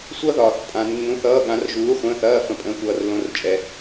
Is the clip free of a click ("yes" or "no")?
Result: yes